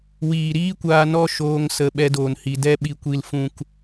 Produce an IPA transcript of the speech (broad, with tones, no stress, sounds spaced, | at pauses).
w iː˨ ɾ iː˦ kʷ aː˧ n ɔ˦˨ ʃ oː˧ ŋ s ə˧ ɓ ɛ˧ d oː˨ n h i˨ d ɛ˧ ɓ i˨ kʷ i˨ l f ũ˨ k